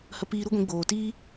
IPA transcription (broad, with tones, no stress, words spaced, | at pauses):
hə˧piː˧ɾu˦ɡʷĩ˨˦ ɡ͡boː˨tiː˦